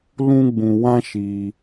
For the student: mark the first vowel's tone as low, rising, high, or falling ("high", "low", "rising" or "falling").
high